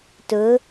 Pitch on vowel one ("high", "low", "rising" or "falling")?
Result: rising